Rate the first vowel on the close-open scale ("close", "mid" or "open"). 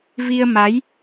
close